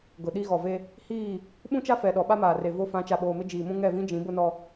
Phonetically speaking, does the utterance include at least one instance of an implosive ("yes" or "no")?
yes